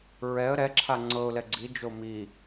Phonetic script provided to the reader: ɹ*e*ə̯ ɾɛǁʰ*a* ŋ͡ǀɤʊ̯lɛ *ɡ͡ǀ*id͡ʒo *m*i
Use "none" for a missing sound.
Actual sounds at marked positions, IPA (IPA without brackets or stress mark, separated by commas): ɛ, a, ɡ͡ǀ, m